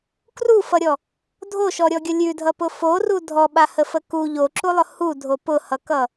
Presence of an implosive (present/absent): present